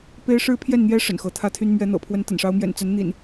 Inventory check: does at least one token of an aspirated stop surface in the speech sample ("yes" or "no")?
yes